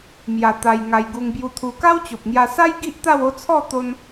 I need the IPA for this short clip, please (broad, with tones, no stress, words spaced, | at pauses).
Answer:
mja˧t̪a˧j ŋa˧jɡu˧ŋ bju˧t̪ʰu˧ ka˦wt͡ɕo˨p̚ŋja˧sa˦j ɡi˦ʔt̪a˥˧wo˥˧t͡sʰɔ˥˧ t̪o˦n